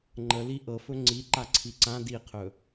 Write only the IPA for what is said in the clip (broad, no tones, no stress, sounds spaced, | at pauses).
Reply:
ŋ͡ǃ ə l i ʔ ɤ f ɵ ŋ͡ǀ i ǃ a ǀʰ i ǀ ã d i qʰ ɵ